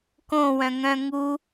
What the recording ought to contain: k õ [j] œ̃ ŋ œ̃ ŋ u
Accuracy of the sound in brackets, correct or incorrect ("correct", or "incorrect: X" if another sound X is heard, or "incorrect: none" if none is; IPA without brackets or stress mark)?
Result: incorrect: w